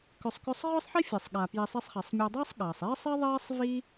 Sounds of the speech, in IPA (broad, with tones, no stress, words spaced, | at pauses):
kʏ˨sˤkʏ˦sˤ ʁʏː˥sˤħi˥fʲe˩sˤ ɠa˩ pji˨sˤe˦sˤχe˩sˤ mʲɔ˨dˤɐː˥sˤ ɠɐː˩sˤeː˥sˤ e˥ðˤeː˥sˤ vi˥